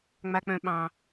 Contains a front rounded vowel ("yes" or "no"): yes